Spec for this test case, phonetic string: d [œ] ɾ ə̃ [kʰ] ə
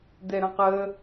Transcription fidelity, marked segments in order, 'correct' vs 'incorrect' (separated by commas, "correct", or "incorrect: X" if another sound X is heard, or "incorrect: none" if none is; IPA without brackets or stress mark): incorrect: ɛ, incorrect: q